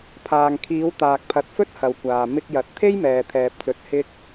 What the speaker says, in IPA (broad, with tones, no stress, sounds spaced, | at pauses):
pʰ aː˨ ŋ kʰ iː˨˧ w t̪ aː˨ k̚ pʰ ɐ˨ t̚ f ɵ˥ t̚ h ɐ˨ w kʷ aː˨ m ɪ˧ k̚ j ɐ˨ t̚ t̪ʰ e˥ j m ɛː˨ t̪ʰ ɛː˨ p̚ t͡s ɵ˨ t̚ h ɪ˧ k̚